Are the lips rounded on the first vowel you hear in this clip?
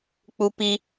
yes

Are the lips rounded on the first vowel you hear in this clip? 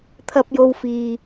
no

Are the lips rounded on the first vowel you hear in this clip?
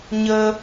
no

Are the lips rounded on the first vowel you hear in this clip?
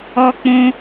yes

